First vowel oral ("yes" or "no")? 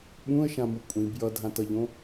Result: no